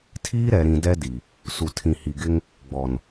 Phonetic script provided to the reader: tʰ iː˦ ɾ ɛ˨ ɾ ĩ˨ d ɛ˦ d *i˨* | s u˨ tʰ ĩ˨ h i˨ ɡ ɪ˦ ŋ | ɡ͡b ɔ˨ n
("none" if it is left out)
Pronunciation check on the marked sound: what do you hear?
i˨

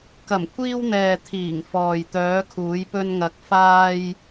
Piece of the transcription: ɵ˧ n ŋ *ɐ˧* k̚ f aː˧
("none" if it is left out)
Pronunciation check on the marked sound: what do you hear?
ɐ˨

